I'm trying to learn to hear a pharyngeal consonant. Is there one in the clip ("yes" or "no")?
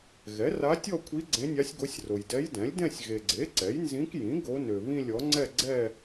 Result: no